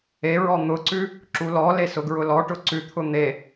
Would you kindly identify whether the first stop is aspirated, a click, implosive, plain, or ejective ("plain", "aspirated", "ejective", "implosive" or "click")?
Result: click